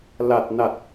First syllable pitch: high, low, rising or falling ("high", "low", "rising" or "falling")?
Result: low